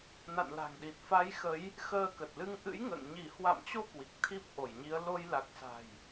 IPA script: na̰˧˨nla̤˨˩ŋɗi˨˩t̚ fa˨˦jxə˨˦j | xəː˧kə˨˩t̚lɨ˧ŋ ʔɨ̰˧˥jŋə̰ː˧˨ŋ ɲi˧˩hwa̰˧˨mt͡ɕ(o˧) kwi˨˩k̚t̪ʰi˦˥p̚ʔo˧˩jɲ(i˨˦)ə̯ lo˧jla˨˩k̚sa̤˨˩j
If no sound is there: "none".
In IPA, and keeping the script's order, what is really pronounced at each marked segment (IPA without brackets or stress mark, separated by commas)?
o˧, i˨˦